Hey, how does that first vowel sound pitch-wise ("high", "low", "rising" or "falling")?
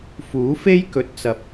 rising